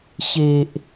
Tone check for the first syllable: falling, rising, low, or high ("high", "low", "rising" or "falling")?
low